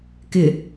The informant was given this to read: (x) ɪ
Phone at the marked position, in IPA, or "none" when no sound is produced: k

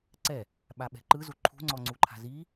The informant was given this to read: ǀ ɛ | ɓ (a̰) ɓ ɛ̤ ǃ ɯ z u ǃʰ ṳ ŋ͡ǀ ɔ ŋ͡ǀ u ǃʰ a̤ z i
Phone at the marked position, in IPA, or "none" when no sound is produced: a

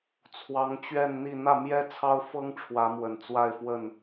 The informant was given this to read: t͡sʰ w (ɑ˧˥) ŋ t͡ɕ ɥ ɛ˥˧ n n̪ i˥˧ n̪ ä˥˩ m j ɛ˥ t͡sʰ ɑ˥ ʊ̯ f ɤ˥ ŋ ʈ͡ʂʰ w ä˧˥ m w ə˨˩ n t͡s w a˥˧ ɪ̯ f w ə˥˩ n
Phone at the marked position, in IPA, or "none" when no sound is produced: ɑ˧˥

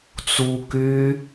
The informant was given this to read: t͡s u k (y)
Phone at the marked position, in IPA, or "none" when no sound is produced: y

